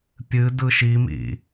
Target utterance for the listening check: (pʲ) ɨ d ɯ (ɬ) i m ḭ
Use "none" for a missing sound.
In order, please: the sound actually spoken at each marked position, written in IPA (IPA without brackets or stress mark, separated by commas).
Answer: pʲ, ʃ